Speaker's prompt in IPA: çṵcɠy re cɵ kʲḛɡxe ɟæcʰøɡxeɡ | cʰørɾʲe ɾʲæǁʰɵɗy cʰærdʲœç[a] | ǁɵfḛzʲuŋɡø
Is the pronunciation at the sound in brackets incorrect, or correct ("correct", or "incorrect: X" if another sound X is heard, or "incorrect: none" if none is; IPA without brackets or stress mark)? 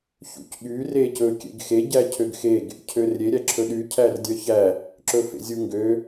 incorrect: æ